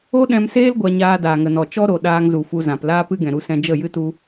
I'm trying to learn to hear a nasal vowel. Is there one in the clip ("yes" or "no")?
yes